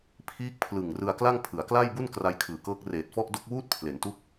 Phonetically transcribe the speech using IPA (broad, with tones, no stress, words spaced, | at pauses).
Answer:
pʰiː˦˥k̚pʰlɯ˨˩ŋ rɯ˧a̯kla˥˩ŋ pʰɯ˩˦a̯kla˥˩jbu˥˩n kra˦˥jkʰɯː˨˩kɤː˦˥k̚ reː˨˩t̚fɔ˥˩ʔdo˥˩k̚ wuː˥˩t̚pʰle˩˦ntu˦˥k̚